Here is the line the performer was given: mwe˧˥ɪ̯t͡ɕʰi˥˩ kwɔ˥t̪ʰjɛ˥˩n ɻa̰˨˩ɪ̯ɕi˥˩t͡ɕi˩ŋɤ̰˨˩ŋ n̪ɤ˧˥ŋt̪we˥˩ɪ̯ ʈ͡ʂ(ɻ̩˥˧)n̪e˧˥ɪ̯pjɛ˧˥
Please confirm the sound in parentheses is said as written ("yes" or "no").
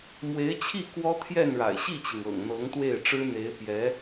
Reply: no